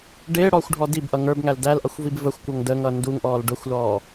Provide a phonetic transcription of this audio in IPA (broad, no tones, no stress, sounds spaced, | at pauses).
ɖ ɪː ɽ ɔː xʷ ɖʱ ɔ d i b ʔ ʌ ŋ ə˞ b ŋ æ l d æ l ʔ ʌ xʷ v i b v ə xʷ kʷ ʌ ŋ d əː ŋ ʌː n d u ŋ ʔ ɔː l ɖ ʊ xʷ l ɔː